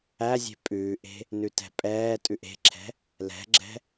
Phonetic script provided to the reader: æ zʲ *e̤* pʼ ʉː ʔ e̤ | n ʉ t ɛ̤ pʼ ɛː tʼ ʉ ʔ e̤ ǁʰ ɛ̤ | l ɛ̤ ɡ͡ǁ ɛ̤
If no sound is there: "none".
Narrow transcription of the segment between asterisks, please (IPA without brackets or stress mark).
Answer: e̤